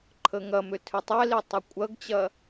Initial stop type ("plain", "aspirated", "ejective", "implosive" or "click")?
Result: click